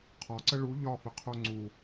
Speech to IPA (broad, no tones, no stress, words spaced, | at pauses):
qʰɒǀə ɭu ʎɒfəqʰo ŋ͡ǀu